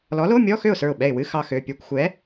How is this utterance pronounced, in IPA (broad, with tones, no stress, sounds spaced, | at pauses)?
l ɔ˨˥ l o˧˥˧ mʲ ɔ˧˥˧ x ø˥˩ ʊ̯ s ə˞˥˩ ʊ̯ ɓ ɛ˥˩ ɪ̯ w ɨ˧˥˧ x ɑ˧ x ø˩˧˩ pʲ ə˞˧ kʷ xʷ ɛ˨˥